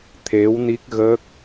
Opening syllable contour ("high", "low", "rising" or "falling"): rising